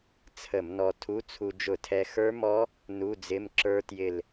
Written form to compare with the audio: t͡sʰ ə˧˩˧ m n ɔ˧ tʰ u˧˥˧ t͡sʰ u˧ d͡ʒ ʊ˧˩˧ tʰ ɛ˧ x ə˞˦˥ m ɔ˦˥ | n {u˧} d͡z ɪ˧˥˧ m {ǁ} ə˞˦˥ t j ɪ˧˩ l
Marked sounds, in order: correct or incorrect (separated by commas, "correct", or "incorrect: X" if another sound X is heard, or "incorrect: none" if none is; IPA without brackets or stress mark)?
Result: incorrect: u˧˥˧, correct